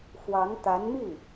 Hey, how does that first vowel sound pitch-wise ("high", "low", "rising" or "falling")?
rising